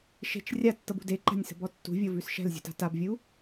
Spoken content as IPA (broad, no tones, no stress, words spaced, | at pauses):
ʃe̤t͡ʃ rʲatːɤbṳ deǃa̤nʲsə̤bɔ tːṳvʲɤvʉs ʃɛ̤lzʲṳta̤ tabvʲu